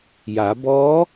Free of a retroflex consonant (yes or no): yes